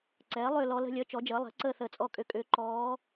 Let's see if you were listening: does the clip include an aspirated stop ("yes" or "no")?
no